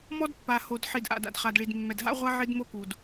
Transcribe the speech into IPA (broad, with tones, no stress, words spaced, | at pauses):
mɔ˦dpːa˨ ho˨d ħi˨dʔa̰˨d a̰˨dχa˨dɭi˨d mːɛ˨dɦa̰˦ʁʷa˦ ʕi˦dmo˦ku˨d